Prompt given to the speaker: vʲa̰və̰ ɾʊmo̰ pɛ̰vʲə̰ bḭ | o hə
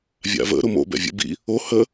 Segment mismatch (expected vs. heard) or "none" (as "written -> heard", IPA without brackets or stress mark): p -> b